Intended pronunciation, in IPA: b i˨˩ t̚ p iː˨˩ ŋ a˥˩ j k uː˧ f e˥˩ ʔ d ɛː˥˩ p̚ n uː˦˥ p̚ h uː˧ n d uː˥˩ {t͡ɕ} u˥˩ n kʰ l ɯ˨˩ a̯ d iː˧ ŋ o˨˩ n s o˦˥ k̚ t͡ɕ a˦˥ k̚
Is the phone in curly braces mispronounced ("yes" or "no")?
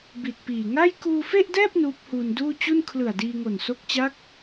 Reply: no